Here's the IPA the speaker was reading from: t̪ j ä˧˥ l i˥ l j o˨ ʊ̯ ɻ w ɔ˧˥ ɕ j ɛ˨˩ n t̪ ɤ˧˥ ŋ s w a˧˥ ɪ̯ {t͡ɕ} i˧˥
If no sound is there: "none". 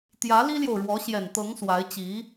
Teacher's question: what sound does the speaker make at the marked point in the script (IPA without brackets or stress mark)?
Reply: t͡ɕ